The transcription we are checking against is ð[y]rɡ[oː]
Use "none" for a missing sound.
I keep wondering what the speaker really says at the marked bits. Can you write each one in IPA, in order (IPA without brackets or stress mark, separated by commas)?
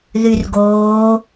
y, oː